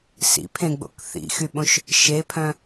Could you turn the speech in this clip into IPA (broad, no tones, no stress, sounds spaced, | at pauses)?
s ḭ pʰ ẽ ɡ͡b o̰ k θ ḭ x y ɓ õ ʃ | ʃ e pʰ œ̃